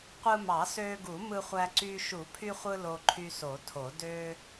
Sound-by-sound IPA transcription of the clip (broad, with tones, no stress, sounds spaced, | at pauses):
qʷ ɯ˧ m ɑ˨˩˦ s øː˧ ɡ u˨˩˦ m ɯ˧ χʷ æ˧ ǀ yː˧ ʃ u˨˩˦ pʰ y˧ χʷ ɯ˧ l o˧ ǃʰ y˧ s o˨˩˦ tʰ o˨˩˦ d ø˧